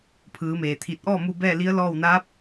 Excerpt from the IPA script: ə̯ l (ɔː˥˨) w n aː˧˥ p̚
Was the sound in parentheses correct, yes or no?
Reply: yes